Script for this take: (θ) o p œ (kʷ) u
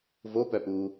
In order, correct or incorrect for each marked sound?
incorrect: v, incorrect: p

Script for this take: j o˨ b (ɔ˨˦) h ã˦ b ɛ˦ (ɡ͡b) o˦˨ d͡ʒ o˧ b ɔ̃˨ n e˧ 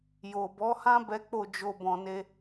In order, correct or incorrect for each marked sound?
correct, incorrect: k͡p

